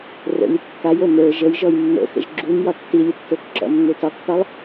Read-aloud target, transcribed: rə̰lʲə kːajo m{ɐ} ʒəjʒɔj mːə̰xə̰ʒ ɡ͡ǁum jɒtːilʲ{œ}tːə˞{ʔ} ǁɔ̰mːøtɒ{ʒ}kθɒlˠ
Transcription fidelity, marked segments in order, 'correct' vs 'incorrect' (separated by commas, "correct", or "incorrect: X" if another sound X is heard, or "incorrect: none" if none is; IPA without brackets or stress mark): incorrect: ə˞, incorrect: ə, incorrect: k, incorrect: none